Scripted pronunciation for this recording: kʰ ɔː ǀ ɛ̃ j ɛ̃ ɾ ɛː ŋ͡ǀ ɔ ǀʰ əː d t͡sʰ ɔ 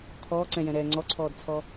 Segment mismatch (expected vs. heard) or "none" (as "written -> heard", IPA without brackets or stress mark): əː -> ɔː